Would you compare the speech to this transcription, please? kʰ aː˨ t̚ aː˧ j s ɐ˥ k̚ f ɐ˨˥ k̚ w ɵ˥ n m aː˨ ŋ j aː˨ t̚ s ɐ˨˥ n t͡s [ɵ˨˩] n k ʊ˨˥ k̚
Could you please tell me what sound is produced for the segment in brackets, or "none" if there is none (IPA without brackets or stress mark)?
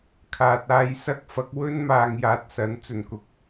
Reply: ɵ˨˩